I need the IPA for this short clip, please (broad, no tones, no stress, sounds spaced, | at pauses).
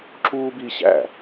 ǁ uː b i ɕ æ̰